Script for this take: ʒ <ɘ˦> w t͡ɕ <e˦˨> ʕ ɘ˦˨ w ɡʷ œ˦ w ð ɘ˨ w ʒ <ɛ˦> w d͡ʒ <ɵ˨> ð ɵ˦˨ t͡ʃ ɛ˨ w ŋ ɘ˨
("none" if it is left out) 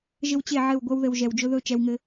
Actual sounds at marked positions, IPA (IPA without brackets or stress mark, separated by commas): ɘ˦, e˦˨, ɛ˨, ɵ˦